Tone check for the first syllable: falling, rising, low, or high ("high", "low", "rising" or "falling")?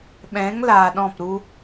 rising